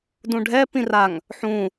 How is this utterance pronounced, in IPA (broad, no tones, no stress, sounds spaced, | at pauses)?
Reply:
d ũ ɖʱ ɛ p ĩ r a ŋ | ħ ũ